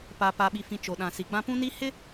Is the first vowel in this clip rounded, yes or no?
no